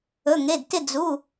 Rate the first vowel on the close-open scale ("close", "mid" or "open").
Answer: mid